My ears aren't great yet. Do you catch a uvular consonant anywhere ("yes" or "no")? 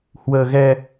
no